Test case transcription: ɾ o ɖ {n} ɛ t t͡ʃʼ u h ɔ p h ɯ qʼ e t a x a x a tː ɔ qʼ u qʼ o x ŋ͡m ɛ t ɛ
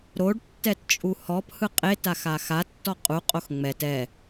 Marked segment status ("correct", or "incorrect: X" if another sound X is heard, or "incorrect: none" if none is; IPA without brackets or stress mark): incorrect: tː